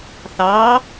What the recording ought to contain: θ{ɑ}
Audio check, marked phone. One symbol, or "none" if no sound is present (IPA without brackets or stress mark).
ɑ